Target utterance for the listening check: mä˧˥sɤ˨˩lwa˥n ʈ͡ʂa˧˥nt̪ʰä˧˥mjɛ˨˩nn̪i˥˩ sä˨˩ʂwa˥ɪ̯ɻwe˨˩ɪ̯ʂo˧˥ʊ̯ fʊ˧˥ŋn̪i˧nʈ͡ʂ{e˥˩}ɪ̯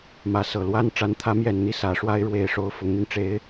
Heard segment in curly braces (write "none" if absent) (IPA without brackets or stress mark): e˧˥